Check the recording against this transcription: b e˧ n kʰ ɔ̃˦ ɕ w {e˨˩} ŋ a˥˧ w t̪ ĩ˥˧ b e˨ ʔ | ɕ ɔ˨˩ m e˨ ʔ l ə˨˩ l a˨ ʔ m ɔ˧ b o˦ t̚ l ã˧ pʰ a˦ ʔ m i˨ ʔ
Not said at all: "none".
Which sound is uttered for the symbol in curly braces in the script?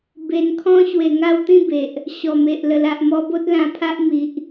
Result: e˨˩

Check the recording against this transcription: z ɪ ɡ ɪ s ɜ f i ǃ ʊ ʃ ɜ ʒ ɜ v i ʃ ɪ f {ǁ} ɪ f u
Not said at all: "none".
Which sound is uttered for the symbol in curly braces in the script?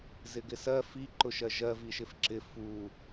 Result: ǁ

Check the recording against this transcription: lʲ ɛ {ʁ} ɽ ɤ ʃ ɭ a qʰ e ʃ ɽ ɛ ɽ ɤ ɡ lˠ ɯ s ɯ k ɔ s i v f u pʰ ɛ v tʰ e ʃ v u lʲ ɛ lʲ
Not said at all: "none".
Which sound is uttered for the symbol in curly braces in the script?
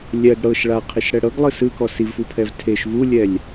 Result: ɡ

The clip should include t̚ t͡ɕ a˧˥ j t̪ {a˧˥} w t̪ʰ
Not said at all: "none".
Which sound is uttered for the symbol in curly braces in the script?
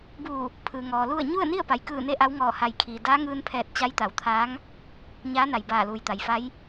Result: a˩˧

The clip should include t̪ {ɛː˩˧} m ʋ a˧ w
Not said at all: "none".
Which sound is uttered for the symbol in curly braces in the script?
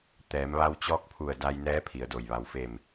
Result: ɛː˩˧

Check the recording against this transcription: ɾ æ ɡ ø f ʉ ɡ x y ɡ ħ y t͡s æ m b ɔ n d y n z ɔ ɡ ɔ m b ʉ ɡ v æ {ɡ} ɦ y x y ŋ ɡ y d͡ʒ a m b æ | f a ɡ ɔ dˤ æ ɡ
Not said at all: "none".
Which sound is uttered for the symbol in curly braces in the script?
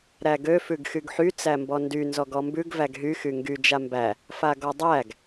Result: ɡ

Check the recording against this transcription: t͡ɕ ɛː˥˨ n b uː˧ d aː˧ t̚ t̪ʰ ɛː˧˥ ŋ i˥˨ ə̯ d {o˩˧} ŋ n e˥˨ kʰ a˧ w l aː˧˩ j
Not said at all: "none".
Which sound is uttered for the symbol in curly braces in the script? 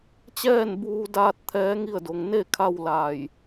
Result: o˩˧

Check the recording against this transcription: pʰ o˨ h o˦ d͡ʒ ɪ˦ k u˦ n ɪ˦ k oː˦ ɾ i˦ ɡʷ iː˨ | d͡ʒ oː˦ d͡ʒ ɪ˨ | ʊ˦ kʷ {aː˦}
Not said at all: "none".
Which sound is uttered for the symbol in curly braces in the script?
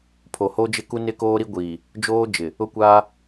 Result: aː˦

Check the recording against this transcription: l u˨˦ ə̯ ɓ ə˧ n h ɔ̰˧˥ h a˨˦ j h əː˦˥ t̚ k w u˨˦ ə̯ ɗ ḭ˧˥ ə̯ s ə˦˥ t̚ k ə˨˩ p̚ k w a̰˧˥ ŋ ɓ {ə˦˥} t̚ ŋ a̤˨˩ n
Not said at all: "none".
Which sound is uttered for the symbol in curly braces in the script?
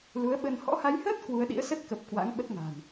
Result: ə˦˥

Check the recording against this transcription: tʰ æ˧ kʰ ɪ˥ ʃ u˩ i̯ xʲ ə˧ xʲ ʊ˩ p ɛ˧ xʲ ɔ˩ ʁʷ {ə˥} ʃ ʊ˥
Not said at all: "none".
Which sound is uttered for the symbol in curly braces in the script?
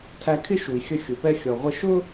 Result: ə˧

